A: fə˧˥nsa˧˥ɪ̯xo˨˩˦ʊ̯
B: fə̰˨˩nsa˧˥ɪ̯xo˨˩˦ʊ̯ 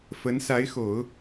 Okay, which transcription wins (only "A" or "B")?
A